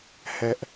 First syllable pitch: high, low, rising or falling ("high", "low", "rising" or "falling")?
high